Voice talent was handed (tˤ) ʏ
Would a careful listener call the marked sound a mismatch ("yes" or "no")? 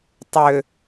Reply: no